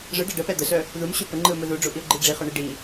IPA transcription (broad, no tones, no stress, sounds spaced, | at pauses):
ʐ ɯ ɖ a ɖ ə p ɛ d̪ ə s œ | ð u m ɕ u p ə ŋ͡ǃ ɯ ʊ̯ m ɯ ð u ɖ͡ʐ u ʔ i ʊ̯ ɡ͡ǃ i ɖ͡ʐ i χ œ ɳ i ɖ i